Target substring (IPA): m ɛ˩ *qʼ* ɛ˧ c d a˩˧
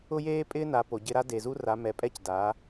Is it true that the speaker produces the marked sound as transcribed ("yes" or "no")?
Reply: no